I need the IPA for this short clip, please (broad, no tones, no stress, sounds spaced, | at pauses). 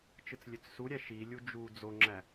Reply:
t͡ʃ ɯ t͡s lʲ ø t͡s s u ɾʲ æ ʃ i lʲ u d͡ʒ u d͡z o ŋ͡ǁ æ